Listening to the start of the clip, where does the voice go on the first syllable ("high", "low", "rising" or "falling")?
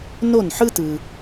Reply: falling